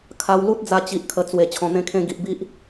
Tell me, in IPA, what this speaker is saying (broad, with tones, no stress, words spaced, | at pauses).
kʰa˧w lu˦t̚d͡za˧ t͡ɕi˨ʔkʰə˨˩ t͡swe˨˩ t͡ɕʰɔ̃˨˩n̪ẽ˧kʰẽ˧ ɡi˨ʔbi˦ʔ